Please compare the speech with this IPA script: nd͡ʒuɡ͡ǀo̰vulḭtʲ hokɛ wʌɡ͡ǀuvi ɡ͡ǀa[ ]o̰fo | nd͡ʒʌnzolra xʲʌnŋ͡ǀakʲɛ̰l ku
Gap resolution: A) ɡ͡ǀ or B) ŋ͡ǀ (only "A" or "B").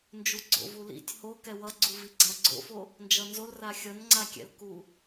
A